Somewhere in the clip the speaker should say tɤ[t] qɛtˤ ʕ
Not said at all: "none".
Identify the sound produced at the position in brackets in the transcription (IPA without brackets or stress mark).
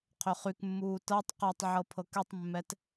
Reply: tˤ